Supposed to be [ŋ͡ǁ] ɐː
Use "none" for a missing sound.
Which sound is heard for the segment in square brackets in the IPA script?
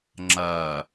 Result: ŋ͡ǁ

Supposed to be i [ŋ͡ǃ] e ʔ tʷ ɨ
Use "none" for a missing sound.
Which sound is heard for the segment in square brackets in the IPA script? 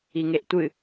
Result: ŋ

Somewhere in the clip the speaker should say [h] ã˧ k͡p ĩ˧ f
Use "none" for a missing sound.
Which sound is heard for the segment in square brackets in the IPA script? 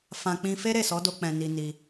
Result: f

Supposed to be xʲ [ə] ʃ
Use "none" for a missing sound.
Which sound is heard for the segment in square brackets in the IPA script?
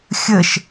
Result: ə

